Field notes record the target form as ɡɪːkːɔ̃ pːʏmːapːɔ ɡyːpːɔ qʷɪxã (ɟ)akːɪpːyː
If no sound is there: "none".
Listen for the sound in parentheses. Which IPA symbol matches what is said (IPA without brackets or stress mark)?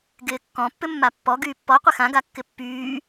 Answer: ɡ